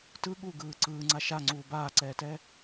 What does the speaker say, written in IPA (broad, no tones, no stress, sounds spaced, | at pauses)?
t ɯ ɠ u ɡ ɯː ǀ ɯː ŋ͡ǀ a ʃ a ŋ͡ǀ uː b aː ǀ ɛː t ɛ